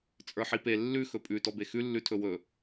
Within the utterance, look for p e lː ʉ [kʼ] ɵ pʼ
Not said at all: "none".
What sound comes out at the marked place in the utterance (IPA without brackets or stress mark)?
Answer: x